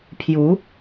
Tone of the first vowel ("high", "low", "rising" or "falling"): rising